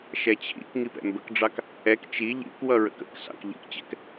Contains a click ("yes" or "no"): no